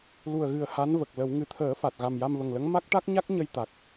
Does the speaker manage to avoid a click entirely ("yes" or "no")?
yes